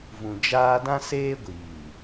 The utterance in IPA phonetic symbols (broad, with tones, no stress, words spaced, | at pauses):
vũ˨d͡ʒaː˦ dã˦seː˦ɡʷiː˨